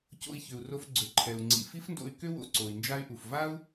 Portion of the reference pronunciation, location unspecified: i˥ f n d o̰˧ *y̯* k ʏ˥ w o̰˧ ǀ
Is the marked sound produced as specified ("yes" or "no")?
yes